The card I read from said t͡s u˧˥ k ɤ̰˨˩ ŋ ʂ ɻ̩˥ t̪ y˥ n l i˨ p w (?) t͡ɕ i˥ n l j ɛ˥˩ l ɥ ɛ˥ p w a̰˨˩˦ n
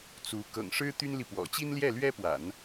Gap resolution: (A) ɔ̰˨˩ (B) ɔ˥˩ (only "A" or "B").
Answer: A